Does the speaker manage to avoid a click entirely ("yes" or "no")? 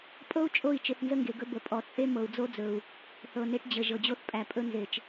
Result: yes